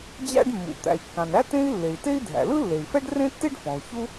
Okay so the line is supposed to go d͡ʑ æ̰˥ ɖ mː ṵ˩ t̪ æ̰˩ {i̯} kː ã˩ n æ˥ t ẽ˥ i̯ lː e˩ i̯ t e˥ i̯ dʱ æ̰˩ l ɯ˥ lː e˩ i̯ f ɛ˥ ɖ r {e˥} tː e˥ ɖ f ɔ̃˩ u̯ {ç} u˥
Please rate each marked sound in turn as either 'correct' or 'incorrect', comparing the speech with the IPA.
correct, incorrect: ẽ˥, correct

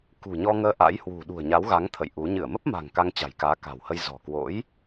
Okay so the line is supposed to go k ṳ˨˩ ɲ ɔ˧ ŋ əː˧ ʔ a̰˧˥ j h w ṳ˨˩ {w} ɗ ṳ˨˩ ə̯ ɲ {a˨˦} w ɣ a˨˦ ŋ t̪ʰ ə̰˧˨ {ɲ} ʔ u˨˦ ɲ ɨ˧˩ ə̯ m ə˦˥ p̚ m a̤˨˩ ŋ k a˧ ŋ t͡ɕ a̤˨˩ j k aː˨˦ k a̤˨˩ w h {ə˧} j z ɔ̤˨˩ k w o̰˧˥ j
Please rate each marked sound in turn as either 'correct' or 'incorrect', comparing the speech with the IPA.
incorrect: none, correct, incorrect: j, correct

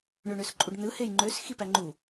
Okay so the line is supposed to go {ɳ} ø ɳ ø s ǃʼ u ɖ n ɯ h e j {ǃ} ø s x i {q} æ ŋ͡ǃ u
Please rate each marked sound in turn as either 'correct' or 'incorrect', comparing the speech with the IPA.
correct, incorrect: ŋ͡ǃ, incorrect: p

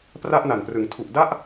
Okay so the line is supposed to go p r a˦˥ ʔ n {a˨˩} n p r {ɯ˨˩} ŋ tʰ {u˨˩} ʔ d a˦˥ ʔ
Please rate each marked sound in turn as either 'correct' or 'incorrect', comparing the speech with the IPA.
correct, incorrect: ɯ˩˦, correct

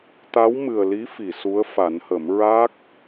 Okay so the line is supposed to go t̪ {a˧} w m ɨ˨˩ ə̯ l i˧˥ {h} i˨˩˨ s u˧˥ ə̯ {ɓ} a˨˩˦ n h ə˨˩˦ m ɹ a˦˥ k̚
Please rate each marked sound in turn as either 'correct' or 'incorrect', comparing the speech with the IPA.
incorrect: a˧˥, incorrect: f, incorrect: f

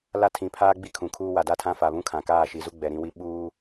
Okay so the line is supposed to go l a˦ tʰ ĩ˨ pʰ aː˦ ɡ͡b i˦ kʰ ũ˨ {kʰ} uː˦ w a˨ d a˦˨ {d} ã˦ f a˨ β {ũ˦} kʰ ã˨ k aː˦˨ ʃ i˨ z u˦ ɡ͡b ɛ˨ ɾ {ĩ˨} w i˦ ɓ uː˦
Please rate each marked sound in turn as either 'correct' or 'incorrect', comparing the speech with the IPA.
correct, incorrect: tʰ, correct, incorrect: ĩ˦

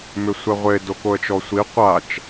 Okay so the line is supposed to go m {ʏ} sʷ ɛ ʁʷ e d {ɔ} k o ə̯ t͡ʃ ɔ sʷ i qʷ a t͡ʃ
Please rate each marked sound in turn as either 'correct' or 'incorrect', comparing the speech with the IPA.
correct, incorrect: o

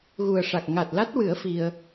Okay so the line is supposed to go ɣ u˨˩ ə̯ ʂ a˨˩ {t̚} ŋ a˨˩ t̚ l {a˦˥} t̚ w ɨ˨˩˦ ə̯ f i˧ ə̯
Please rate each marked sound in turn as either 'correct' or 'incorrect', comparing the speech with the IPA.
incorrect: k̚, correct

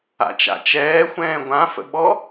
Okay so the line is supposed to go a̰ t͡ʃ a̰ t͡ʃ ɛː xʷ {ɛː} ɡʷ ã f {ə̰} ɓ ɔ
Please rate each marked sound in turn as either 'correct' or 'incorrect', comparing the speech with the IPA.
incorrect: ɛ̃ː, correct

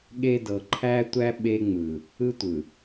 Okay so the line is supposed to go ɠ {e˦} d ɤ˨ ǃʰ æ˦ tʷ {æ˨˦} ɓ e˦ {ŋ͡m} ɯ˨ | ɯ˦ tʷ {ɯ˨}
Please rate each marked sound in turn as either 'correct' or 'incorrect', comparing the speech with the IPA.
correct, incorrect: æ˦, correct, correct

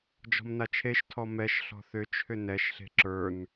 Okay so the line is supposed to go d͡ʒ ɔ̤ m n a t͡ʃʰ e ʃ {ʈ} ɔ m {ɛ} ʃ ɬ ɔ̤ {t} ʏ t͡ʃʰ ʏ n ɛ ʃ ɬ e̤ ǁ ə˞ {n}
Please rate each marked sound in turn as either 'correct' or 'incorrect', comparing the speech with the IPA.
incorrect: tʰ, correct, incorrect: θ, correct

